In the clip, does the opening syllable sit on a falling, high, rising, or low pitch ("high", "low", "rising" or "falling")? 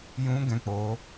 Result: high